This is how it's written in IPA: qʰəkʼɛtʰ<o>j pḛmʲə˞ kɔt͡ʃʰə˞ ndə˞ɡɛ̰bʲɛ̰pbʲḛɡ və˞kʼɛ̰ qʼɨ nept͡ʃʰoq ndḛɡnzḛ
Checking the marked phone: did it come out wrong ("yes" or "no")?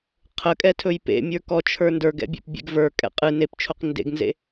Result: yes